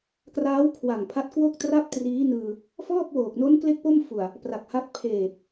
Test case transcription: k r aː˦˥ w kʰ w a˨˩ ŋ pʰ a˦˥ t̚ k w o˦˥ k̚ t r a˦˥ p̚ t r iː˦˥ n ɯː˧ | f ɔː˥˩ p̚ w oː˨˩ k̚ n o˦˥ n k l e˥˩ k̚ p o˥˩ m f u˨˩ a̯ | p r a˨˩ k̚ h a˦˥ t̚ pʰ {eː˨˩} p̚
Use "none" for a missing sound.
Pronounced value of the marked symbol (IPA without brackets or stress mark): eː˨˩